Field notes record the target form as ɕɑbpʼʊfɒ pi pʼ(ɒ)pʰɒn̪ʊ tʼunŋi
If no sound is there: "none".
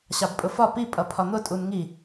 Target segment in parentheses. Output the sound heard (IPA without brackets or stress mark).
ʌ